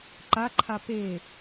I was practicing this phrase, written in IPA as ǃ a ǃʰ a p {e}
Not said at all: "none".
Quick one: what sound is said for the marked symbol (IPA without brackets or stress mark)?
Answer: e